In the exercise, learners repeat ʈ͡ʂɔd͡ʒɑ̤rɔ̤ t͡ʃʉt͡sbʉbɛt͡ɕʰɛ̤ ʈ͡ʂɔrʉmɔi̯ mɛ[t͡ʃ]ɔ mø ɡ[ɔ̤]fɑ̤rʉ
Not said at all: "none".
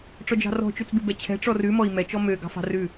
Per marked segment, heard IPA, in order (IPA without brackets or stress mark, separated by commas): t͡ʃ, ɑ̤